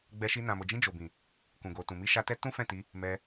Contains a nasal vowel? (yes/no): yes